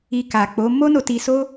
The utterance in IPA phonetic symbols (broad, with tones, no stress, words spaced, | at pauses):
i˧ ka˨k͡po˨˦ mo˦ no˧ti˧so˦